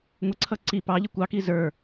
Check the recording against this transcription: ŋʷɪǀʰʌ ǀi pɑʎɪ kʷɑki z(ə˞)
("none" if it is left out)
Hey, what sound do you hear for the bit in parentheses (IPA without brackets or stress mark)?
ə˞